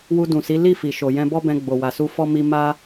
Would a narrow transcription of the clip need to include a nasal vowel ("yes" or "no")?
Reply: yes